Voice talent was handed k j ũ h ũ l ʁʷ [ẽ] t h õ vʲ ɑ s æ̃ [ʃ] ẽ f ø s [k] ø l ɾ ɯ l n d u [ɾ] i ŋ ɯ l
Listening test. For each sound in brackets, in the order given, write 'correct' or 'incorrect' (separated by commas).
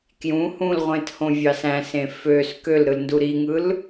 correct, incorrect, correct, correct